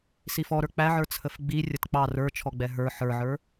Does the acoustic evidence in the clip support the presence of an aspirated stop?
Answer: yes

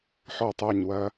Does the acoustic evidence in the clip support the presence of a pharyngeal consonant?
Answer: yes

